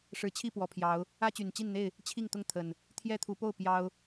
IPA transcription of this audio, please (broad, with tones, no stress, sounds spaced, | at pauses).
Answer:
ʂ ɻ̩˨˦ t͡ɕʰ i˥˨ p w ɔ˨˩ pʰ j ɑ˨˦ ʊ̯ | ä˦ t͡ɕ y˨˩ n t͡ɕ i˥˨ n n̪ e˥˨ ɪ̯ | t͡ɕʰ i˥˨ ŋ t̪ ʊ˥˨ ŋ t̪ʰ ə˨˩ n | t̪ʰ j ɛ˦ t̪ʰ u˨˦ p o˥˨ ʊ̯ p j ɑ˦ ʊ̯